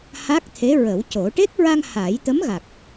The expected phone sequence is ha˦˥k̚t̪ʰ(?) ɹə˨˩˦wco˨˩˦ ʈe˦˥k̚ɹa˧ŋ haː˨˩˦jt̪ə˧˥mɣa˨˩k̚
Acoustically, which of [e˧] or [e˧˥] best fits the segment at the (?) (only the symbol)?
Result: e˧˥